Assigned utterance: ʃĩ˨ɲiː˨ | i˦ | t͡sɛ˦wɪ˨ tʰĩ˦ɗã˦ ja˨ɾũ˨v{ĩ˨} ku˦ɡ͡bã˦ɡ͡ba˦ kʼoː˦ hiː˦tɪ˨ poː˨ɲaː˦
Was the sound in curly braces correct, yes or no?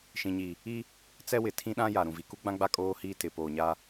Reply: no